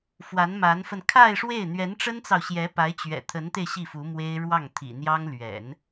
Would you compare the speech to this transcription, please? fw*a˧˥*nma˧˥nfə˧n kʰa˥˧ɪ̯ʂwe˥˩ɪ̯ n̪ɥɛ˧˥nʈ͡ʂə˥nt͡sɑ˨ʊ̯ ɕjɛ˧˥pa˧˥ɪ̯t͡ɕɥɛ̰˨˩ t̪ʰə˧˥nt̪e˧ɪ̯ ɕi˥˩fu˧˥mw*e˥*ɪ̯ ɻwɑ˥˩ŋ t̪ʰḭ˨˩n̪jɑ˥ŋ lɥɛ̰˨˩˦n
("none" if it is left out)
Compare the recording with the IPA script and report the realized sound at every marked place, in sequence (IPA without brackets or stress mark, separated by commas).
a˧˥, e˥